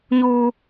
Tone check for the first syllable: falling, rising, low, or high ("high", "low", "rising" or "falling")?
high